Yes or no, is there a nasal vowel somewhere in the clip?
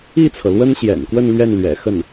no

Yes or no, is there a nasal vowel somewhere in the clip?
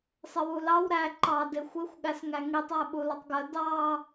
no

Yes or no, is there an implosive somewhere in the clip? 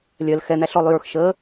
no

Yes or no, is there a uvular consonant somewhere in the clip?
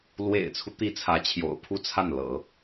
no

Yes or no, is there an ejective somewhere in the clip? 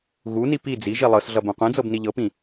no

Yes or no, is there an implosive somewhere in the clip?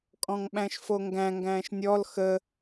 yes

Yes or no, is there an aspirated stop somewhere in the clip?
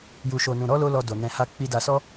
no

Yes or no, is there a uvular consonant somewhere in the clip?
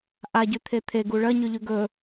no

